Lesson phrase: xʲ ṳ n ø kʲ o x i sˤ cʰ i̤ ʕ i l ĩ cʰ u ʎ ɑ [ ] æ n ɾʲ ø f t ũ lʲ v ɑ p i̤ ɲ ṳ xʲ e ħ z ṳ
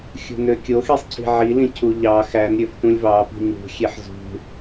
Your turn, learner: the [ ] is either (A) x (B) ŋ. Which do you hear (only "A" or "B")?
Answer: A